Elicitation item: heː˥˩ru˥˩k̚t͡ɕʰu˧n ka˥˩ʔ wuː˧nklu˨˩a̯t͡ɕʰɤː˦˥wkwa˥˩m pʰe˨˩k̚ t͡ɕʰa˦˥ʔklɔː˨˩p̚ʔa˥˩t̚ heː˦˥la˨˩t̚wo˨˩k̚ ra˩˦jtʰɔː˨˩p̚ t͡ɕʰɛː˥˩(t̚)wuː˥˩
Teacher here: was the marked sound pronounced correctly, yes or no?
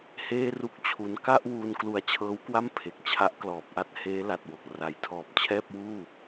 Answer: no